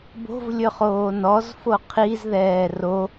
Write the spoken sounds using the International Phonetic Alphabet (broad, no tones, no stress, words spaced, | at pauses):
bo̤vlʲɵχoː nɔzfo qʰizðɛː ro